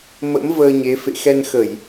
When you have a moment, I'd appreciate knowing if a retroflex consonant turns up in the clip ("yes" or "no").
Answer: no